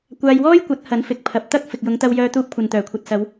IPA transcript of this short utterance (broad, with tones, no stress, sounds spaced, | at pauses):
kʷ aː˧ j w ɔː˥ j kʷ ɐ˨˥ t̚ h ɐ˨˥ n f ɪ˨ k̚ pʰ ɐ˨ p̚ t̪ ɐ˥ k̚ f ɪ˨ k̚ j ʊ˨˧ ŋ t̪ ɐ˧ w j œː˧ t̪ uː˧ p̚ kʷʰ ɐ˨ n t̪ œː˨˩ kʷʰ ɐ˨ t̚ s ɐ˨˧ w